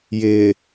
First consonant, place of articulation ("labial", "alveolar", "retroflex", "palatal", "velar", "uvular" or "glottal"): palatal